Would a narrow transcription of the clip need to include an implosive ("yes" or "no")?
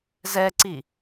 no